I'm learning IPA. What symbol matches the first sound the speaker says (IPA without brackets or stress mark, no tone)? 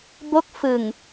b